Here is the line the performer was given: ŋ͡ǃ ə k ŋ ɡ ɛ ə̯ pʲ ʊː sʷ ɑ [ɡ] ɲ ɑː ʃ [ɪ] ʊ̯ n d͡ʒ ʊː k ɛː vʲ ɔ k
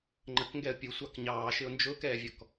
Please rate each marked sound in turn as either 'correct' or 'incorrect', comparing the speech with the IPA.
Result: incorrect, correct

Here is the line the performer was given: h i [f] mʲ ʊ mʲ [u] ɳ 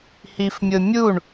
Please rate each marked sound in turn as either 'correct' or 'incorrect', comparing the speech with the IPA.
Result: correct, correct

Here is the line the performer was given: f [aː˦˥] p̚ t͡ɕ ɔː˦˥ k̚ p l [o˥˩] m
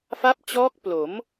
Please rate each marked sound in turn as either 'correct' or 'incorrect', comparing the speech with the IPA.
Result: incorrect, incorrect

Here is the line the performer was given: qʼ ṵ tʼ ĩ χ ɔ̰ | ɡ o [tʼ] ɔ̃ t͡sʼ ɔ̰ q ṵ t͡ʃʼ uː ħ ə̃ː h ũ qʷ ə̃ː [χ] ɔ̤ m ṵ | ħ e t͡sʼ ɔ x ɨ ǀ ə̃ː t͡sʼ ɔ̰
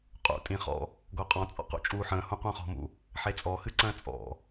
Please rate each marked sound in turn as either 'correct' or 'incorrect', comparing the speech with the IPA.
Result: incorrect, correct

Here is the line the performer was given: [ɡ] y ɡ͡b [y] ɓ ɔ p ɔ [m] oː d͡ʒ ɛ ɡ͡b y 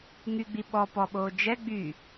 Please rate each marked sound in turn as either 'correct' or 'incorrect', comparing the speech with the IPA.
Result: incorrect, incorrect, incorrect

